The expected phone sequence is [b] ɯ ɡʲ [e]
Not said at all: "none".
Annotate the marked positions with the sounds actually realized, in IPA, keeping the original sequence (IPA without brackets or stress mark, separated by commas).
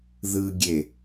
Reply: ð, e